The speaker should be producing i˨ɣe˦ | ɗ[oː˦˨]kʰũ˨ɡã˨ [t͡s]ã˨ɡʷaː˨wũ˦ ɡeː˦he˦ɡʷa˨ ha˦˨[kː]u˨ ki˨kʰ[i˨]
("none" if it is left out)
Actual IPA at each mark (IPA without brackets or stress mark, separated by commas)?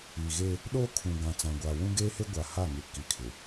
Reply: oː˦, t͡s, ŋ, ɪ˨